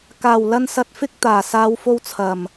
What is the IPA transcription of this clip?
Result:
kaː˨˩wlɐ˧n sɐ˧t̚fɪ˥k̚ t̪aː˨˩ saː˨˧wfo˧w t͡sʰɐ˨˩m

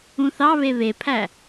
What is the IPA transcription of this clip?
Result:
ũθɑβe βepʰæ

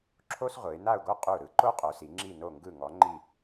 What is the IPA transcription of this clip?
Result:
ǁʰo˥sʁʷɯ˩˧ɪ̯na˥˧ʊ̯ɡo˥ qʼu˧˩ɾɯ˧ ǃo˥qʼo˩˧si˩˧ ŋ͡ǁi˧˩no˧˩ ŋɡɯ˧˩ ŋɔ˩˧ŋ͡ǃi˧˩

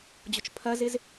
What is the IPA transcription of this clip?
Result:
d͡ʑʊt͡ʃpʰɐzɪz

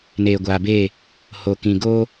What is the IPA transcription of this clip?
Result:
neː˨ɡʷaː˨beː˦˨ | ho˨kĩ˨ɡoː˦

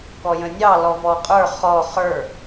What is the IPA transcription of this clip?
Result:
kɔjə̃nʲɑ lɔvɔqʼə˞ χɔ χə˞

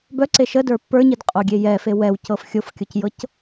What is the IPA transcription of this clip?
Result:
bœǀe ʃədə˞ pːə˞ɲidqʼoɡʲe jɛfe wɛwcɤf xʲofkʲocjɤc

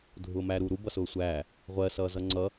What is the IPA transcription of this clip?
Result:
dʱʊːmæːɾuːɾu bʌsʊːsʷæː | ʁʷɜ sʌːzʌŋ͡ǀʌ

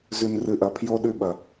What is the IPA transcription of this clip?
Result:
zʉ˨nrɨ˨ʔɐ˨pʰjo˦ ɗʉ˦ɓɐ˨

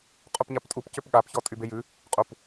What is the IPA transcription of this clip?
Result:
qʼupɲaptʼup cʏpɠap çɔtʼybejʉ | qʼup

